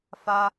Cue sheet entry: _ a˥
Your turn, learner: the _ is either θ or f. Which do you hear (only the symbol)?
f